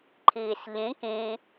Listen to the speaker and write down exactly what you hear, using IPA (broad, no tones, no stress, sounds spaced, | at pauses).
ǃʰ iː s ʎ ĩ k ĩ